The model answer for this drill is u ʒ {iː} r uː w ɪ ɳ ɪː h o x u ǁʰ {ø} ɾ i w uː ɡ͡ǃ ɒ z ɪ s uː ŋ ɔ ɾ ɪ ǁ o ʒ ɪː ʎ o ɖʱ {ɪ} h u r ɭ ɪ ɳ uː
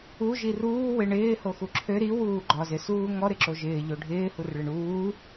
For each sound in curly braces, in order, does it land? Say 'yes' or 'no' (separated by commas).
no, yes, no